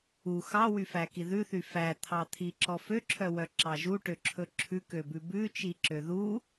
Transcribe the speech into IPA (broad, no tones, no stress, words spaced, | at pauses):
u xɑwyfæki ðʉθy fæt̪ʰɑt̪ʰiǁɔ føǁʰœwœǁɑ ʒuʈøǁʰɵ ǁʰʉkøbʉ bʉt͡ʃiǁø ðu